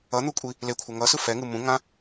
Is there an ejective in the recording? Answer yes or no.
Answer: yes